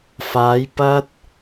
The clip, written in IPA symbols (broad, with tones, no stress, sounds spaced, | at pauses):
f aː˨˧ j p ɐ˧ t̚